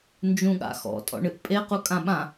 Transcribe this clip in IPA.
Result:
n d͡ʒ ũ ɠ a̰ x ɔ̰ tʼ ɔ̰ ɳ ɨ ʔ pʼ e q u kʼ ã ɓ ã

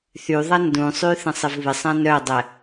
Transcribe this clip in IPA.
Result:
θ y ðˤ ɐ n d ũ sˤ y θ ɐ̃ sˤ ɪ v β ɪ sˤ ã n œ dˤ ɛ

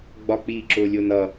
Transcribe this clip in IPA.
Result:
ɡ͡b ɒ k͡p iː ǁ ʊː lʲ ʊː n ʌ

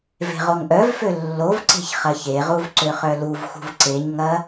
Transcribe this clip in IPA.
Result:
v e̤ ʁ o ŋ ʔ œ v f ø lː o v ǀ e̤ ç χ ɐ ç e ʁ u v ǀ ø χ œ l u v x ṳ v ǀ e ɲ ŋ ɐ

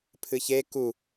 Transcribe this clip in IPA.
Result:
pʰ ɨ ç e k u

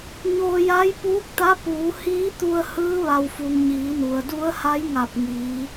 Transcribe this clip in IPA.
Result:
ɲ oː˧ j a˧˥ j p uː˧˥ k̚ t̪ a˧˥ p uː˩˧ h iː˧˥ t̪ u˧ ə̯ h ɯː˧˥ ʋ a˩ w f u˩ ŋ ɲ iː˩˧ n u˩ ə̯ d u˧˥ ə̯ h a˧˥ j ŋ a˧˩ p̚ ŋ iː˩˧

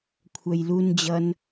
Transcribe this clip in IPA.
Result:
kʷʰ œ j l u n d͡ʑ ʌ n

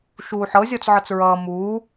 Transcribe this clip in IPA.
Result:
ʃ uː ħ ɤ zʲ ɔ t͡s ʕ ɤ t͡s ɹ ʌː m uː

